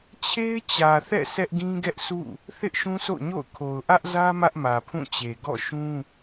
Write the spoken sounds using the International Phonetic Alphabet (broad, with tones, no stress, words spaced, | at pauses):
t͡ɕʰe˦ɪ̯t͡ɕä˨θɛ̰˦˨ sʰɛ˦ʔɡĩ˦ ɡɛ˦ʔsʰṵ˦˨ | θɪ˦ʔʃũ˦sʰo̰˦˨ɲo̰˦˨ʊ̯ kʰo˨ʊ̯ʔä˦ʔzä˦ mä˦ʔmä˨pʰũ˦˨t͡ɕe˨ ɡɔ̰˦˨ʃũ˦